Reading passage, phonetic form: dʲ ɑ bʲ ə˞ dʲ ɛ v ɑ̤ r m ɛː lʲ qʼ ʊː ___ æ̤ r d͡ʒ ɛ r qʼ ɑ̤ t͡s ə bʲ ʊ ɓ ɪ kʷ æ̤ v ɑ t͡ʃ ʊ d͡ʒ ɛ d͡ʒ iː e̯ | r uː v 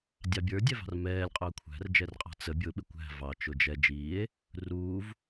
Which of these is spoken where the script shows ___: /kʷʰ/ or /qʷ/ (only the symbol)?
kʷʰ